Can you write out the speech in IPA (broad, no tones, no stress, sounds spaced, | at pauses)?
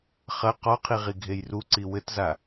χ ɐ q ɔ qʰ i ʁ i ɡʱ e j r u ǀ i w ɘ t z a